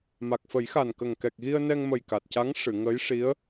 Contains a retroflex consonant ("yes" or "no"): yes